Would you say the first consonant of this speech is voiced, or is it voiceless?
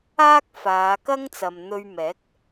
voiceless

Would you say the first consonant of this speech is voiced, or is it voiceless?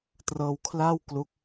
voiceless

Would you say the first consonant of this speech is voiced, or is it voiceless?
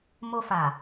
voiced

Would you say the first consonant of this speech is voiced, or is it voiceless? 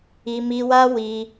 voiced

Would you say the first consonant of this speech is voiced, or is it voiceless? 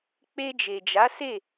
voiceless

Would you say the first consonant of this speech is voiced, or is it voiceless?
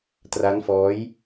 voiceless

